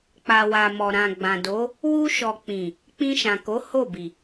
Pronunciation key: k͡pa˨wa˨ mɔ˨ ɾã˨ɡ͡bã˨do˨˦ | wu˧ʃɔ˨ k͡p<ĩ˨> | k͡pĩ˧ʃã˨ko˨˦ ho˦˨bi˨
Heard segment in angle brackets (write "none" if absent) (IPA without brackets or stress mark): ĩ˨